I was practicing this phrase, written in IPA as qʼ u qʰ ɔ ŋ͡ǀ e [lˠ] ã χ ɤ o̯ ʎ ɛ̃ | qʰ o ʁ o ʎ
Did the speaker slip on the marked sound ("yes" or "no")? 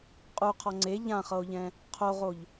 yes